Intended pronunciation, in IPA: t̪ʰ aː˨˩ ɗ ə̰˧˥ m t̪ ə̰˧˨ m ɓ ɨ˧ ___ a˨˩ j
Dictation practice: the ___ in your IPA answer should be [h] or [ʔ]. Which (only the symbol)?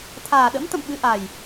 ʔ